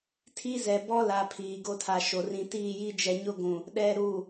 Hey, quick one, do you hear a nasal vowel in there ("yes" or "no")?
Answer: yes